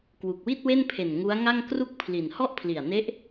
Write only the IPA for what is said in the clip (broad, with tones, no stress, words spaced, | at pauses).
kwu˨˩k̚wi˥˩t̚we˥˩npʰe˨˩n ŋu˦˥a̯ŋa˥˩ŋ kru˥˩k̚pʰli˨˩n hɔ˥˩ʔpʰli˨˩a̯ne˦˥ʔ